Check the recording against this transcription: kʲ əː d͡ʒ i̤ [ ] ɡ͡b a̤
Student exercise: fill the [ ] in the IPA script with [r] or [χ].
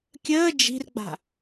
r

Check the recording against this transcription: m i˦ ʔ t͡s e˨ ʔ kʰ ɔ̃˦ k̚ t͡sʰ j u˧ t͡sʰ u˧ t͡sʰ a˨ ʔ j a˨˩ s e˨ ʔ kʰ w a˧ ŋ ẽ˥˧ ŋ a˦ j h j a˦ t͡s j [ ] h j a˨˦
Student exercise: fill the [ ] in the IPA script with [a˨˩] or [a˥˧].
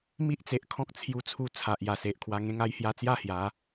a˥˧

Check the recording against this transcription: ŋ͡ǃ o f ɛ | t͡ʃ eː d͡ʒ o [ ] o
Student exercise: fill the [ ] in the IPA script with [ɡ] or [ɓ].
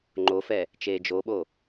ɓ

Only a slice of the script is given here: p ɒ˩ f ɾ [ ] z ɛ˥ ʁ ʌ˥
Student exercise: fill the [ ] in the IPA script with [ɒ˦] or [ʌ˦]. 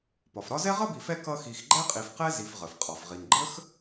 ɒ˦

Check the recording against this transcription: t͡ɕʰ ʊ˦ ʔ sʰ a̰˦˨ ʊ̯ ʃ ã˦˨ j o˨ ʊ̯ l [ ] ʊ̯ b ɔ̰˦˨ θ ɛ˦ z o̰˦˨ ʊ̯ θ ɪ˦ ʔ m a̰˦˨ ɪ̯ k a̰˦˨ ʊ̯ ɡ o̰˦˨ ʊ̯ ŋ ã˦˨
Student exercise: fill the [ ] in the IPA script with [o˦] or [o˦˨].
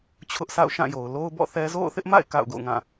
o˦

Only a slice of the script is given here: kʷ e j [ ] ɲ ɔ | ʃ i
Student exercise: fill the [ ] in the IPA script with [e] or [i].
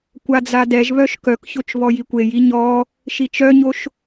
i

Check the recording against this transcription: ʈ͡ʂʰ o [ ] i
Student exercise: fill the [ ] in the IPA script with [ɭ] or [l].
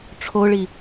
ɭ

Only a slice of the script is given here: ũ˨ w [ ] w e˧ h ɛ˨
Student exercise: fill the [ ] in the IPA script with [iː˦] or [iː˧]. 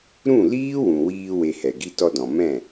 iː˧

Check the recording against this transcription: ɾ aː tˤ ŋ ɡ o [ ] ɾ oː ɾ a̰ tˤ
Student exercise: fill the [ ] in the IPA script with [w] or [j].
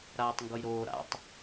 j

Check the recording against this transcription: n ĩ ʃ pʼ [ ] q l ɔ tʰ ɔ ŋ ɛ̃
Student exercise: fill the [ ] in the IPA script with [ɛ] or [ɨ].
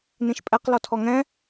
ɛ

